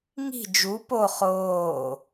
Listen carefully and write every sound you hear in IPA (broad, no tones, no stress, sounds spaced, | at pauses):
ŋ i̤ d͡ʒ u p o χ oː